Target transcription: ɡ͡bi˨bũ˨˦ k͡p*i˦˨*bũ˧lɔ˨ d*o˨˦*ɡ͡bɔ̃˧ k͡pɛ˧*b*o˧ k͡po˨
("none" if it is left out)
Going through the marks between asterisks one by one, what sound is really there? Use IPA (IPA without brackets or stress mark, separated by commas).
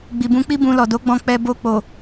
i˦, o˨˦, b